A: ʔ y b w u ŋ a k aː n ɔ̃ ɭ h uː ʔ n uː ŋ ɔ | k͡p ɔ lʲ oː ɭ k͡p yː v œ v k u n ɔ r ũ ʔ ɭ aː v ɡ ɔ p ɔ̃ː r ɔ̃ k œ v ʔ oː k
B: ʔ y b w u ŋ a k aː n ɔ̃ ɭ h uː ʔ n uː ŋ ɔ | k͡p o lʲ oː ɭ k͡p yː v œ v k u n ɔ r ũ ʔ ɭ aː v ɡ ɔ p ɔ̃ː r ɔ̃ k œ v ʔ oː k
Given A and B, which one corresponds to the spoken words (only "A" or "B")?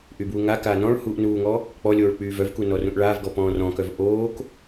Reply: A